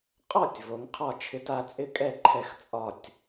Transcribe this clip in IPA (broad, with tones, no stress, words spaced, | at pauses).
qʼɔ˥˨tʲ vo˨˦ŋqʰɒ˥˨ t͡ʃʰɪ˨˦ta˨˦t͡sʼɪ˥˨kʼɛ˥˨ ǃʰɛ˥˨xt͡sʼɒ˥˨tʲ